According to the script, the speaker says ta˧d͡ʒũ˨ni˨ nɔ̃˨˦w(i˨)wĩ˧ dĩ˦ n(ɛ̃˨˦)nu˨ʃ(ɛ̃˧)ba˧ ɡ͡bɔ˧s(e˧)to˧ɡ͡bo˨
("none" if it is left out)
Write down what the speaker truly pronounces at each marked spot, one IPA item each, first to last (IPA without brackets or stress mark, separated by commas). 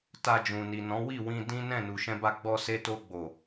i˦˨, ɛ̃˦˨, ɛ̃˧, e˧